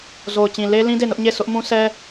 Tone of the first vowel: low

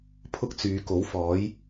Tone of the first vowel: high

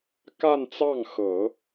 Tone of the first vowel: falling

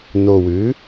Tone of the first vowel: low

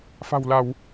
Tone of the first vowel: low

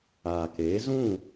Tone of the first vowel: low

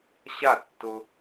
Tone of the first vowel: falling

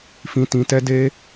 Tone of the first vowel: low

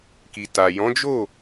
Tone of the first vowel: low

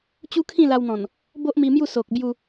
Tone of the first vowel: high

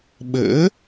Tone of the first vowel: rising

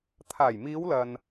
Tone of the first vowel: low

